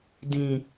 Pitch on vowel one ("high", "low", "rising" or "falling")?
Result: low